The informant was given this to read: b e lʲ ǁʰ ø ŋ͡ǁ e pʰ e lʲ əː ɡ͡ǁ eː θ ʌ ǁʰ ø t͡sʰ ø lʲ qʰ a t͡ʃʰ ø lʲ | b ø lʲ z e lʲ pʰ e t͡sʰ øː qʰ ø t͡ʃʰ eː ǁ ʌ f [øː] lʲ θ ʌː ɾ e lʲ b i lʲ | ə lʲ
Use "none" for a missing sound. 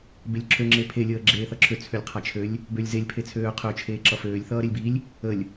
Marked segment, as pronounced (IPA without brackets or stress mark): øː